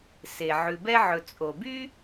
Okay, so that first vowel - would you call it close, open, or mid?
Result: mid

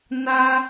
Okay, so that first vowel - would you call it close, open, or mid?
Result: open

